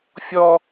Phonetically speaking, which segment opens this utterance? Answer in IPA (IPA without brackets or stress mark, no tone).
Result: fʲ